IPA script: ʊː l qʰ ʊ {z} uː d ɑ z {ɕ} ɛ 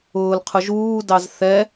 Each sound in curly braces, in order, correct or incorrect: incorrect: ʒ, incorrect: θ

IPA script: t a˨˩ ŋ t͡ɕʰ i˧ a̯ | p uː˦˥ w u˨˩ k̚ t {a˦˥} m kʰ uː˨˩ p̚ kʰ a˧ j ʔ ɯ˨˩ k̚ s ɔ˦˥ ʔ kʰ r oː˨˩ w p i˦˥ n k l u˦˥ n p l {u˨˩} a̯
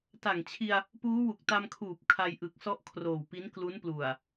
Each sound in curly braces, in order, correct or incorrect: incorrect: a˧, correct

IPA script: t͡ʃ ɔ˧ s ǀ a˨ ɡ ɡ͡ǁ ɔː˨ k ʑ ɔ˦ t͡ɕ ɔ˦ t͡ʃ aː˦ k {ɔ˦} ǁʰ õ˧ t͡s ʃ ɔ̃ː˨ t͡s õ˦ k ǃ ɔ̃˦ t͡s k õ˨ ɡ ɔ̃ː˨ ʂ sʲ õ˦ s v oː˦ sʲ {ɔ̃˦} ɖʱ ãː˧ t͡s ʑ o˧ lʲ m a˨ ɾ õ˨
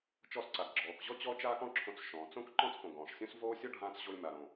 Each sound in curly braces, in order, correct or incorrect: incorrect: ɔ̃˦, incorrect: ɔ˦

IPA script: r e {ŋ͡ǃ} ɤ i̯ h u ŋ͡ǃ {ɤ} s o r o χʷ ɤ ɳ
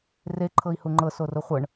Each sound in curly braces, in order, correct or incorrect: incorrect: ǃʰ, correct

